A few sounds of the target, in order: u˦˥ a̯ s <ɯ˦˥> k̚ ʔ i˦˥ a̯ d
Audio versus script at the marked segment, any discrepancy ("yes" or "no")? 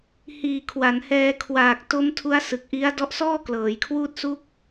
yes